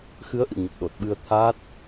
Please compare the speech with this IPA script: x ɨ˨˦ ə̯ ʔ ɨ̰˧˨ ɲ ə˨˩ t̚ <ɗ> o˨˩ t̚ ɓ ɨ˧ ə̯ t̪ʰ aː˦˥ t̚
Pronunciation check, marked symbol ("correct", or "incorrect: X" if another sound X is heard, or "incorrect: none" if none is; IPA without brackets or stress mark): correct